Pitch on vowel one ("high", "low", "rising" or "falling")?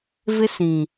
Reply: high